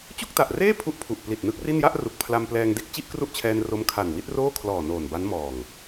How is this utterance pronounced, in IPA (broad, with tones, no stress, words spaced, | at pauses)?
t͡ɕu˥˩k̚ta˨˩ʔreː˥˩ pʰu˥˩ʔpʰu˨˩ʔ pli˨˩t̚nɯ˦˥k̚ri˥˩n ja˥˩ʔ ru˨˩k̚pʰla˧mplɛː˧ŋde˥˩k̚ t͡ɕi˥˩ʔkru˥˩ʔt͡ɕʰɛː˧n ro˦˥mkʰa˨˩n wi˦˥t̚roː˥˩kʰlɔː˨˩ noː˨˩nba˦˥n mɔː˨˩ŋ